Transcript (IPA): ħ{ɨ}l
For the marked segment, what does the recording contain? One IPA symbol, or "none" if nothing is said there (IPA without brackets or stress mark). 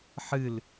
ɨ